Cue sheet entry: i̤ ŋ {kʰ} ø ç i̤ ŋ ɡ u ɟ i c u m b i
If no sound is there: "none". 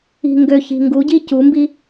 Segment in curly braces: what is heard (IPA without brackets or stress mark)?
ɡ